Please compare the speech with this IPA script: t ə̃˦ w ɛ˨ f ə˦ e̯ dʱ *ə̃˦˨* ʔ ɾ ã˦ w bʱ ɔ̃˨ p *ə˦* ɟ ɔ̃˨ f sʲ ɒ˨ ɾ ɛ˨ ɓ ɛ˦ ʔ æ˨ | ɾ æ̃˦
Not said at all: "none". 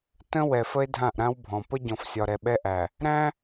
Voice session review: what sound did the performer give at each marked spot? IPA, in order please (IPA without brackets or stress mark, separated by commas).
ã˦˨, ə˦